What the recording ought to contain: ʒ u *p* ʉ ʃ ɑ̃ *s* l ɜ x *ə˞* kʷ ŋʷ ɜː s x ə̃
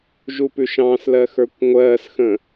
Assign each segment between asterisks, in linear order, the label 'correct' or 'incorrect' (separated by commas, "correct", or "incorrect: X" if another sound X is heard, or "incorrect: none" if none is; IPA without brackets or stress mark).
correct, correct, correct